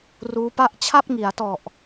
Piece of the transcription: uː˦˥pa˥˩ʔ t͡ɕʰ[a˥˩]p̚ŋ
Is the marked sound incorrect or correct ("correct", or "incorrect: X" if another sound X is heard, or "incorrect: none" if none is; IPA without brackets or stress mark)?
correct